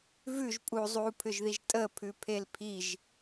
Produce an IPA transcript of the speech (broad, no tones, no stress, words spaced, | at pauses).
vʉʒ pʼu zˤupʰʏʒðiʒ tʼəpʰʉpʰel pʰiʒ